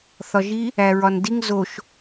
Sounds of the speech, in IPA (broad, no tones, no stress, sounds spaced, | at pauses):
θ ɒ ʒ i | æ ɹ ɒ n d i ŋ z o ʃ